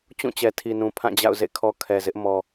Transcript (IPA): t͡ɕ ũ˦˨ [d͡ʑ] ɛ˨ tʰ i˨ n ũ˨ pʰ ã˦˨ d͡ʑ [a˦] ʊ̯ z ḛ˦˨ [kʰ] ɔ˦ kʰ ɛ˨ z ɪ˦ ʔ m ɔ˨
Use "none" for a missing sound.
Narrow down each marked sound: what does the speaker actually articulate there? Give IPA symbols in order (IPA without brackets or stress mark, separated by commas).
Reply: t͡ɕ, a̰˦˨, kʰ